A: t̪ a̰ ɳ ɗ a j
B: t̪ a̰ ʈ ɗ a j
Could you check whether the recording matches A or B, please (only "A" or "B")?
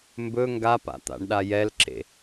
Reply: A